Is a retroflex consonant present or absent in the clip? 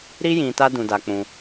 absent